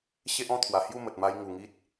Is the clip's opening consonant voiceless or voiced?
voiceless